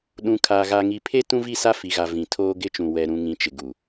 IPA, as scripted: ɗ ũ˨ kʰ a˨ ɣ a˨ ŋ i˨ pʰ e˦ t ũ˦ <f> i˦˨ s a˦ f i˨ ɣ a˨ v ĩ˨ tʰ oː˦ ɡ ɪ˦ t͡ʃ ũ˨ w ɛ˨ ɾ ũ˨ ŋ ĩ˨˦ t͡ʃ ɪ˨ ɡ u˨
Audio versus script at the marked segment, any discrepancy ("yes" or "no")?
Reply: yes